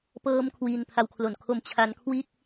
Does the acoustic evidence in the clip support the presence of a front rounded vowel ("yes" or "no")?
no